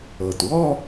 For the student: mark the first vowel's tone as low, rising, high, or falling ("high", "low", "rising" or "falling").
low